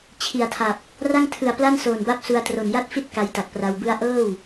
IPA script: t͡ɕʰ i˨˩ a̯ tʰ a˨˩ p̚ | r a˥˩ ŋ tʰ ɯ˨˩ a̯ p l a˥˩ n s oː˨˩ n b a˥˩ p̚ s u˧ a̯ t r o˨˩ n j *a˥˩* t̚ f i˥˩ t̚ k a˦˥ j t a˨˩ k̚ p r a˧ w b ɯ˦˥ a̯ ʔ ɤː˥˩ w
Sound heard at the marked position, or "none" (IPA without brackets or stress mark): a˥˩